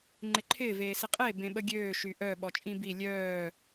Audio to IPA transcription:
ŋ͡ǃ ɪ ǃʰ ɪː v eː s ɪ qʼ e b ẽ ɓ ə ɡʲ øː ʃ y ʔ œ ɓ ɔ t͡ʃʼ ĩ b i lʲ œː

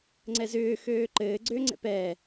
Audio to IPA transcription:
ŋ͡ǀ ɛ z ʏː x øː ǃ ɘː ɡ͡ǀ ʏː ŋ͡ǀ ɛ̰ p ɛː

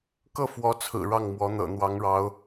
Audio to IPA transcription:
k ɤ˥˩ f w ɔ˧˥ t͡sʰ ɹ̩˨˩ ɻ ɑ˥˩ ŋ m w ɔ˧˥ n̪ ɤ̰˨˩ n̪ w ɑ˧˥ ŋ ɻ ɑ˧˥ ʊ̯

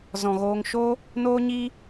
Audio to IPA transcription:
z ɔ̃˨ ɣ oː˧ ŋ ʃ oː˦ | n oː˦ ɲ iː˦

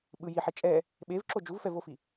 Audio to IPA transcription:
ɓ ɯ j i ħ e t͡ʃʼ ɛ | ɓ e v ǁ o d͡ʒ u v f ɛ v o f i

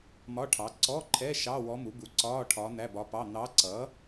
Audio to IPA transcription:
m ɒ˧˥˧ ʈʰ ɑ˩˥ ǀ ɔ˧˥˧ ǃʰ ɛ˧˥˧ ʃ ɑ˧˥˧ w ɔ˧˥ m u˩˥ b u˩˥ ǀ ɒː˧˥˧ ʈʰ ɒː˧˥ n̪ æ˧˥˧ b ɒ˧˥ p ɑ˧˥˧ n̪ ɑ˧˥ ǀ ʌ˩˥

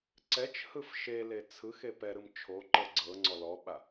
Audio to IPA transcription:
ǀ ɛ t͡ʃ h ɯ f ʃ e l e t͡sʰ ɯ x e p ɛ ɾ ɯ m t͡ʃʰ o ǃ ɤ ɡ͡ǀ ɤ ŋ͡ǀ ɔ l ɔ ɓ a

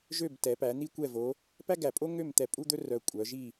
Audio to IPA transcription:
ʒ ø˥˨ b t ɛ˩˧ p æ˩˧ n̪ i˥ kʷ ɛ˥˨ v o˨˥ | p æ˥ ɡ æ˨˩ pʼ o˥ ŋ ø˥˨ m t̪ ɛ˧˩˧ pʼ u˥ d̪ ɵ˥ r œ˨˩ kʷʼ œ˩˧ ʒ i˥˨

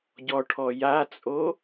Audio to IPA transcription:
ɟ ɔ ʈʰ ɔ j a t͡sʼ o

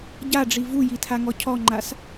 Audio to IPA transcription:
ɟ a ɖ͡ʐ i v u j i tʰ a ŋ ɔ cʰ ɔ ŋ͡ǃ a s

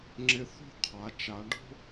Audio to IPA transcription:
ŋ͡ǁ ɪ˧ θ o̤˥˧ qʰ a˩˧ t͡ʃ a˩˧ ɖ o̤˥

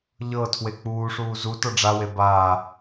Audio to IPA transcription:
ʎ ɤ tʰ w e k͡p uː ʂ uː z u t ɤ ɖ͡ʐ a w e b aː

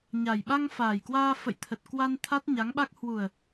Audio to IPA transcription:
ɲ a˨˩ j ɓ a˧ ŋ f aː˨˩ j k w aː˧ f ə̰˧˨ j t̪ʰ ə˨˩ t̚ k w a˧ n t̪ʰ a˦˥ t̚ ɲ a˨˦ ŋ ɓ a˦˥ k̚ h w u˨˩ ə̯

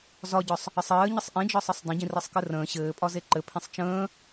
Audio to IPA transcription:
z ɒ ɟ ɒ sˤ | ə sˤ ɘː ɲ ə sˤ ʔ ĩ d͡ʒ ɒ sˤ ɘ sˤ dˤ ə̃ ɟ ĩ r ɘ sˤ k ɘ r ə̃ː ɕ ɘː pʼ ɒ z e ǃ ɘ pʰ ĩ sˤ t͡ʃ ə̃ː

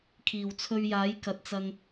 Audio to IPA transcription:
kʰ iː˨˩ w t͡sʰ ɵ˧ ɥ j aː˨˥ j k ɐ˨ t̚ t͡s ɐ˧ ŋ

